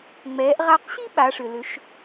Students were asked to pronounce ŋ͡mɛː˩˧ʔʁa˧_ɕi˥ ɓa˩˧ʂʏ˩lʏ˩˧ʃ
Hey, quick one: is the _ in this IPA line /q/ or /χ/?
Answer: q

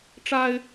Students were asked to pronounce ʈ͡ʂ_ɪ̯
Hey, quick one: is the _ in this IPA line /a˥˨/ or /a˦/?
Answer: a˦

